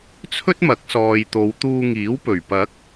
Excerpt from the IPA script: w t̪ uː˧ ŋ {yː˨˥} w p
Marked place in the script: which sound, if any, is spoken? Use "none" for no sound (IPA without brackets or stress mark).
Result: iː˨˥